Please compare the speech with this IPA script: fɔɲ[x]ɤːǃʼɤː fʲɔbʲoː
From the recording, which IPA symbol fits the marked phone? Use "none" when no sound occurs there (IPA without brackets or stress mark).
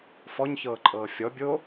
ç